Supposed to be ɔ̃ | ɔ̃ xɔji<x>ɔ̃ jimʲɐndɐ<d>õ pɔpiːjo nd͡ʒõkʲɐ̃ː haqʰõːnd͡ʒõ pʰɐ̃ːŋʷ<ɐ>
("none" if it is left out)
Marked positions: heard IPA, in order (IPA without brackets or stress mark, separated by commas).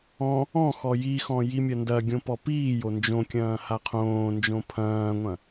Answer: x, ɡʲ, ɐ̃